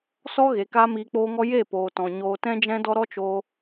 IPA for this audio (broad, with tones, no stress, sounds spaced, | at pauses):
s ɔ˦ ɣ e˨ k aː˦ m iː˧ k͡p oː˦ ŋ ɔ˦ j e˦˨ p oː˨ t ɔ̃˨ ɲ oː˨ t ɛ̃˧ d͡ʒ ɛ̃˧ d ɔ˧ ɾ ɔ˦ t͡ʃ o˧